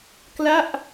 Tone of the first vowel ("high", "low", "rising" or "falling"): falling